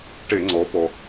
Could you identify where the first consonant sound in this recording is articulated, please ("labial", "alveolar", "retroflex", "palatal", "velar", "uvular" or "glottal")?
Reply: retroflex